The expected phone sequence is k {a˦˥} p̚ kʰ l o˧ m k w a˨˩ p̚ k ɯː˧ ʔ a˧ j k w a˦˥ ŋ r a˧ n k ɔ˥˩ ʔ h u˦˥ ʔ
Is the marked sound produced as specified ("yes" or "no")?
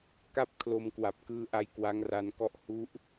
no